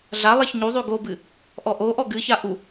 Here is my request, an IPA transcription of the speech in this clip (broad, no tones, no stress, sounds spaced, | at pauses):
ɮ a lˠ ɛ ç ɲ u ðˤ y ɡ o b ɨ | ʔ ɔ ʔ o ʔ ɔ ɡ ɨ ç a ʔ u